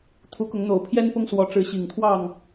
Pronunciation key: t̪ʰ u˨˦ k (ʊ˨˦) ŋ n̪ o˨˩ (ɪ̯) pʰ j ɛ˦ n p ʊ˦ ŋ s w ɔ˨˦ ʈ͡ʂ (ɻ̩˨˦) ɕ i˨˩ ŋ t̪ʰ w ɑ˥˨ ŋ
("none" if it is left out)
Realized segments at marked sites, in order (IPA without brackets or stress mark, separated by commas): ʊ˨˦, ʊ̯, ɻ̩˨˦